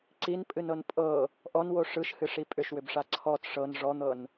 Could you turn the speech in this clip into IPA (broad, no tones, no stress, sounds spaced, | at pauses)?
ǀ i n pʼ ɨ n ɤ n pʼ ɤ | ʔ ɔ n w o ʂ ɯ ʃ h ɨ ʂ i pʼ ʏ ʃ w ʏ b ʂ a ǀʰ ɔ t ʂ ɤ n ʐ ɔ n̪ ɤ n